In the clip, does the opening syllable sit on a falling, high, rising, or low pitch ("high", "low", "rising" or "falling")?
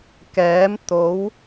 rising